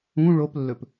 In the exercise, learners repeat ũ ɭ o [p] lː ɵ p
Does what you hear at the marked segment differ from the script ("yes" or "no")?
no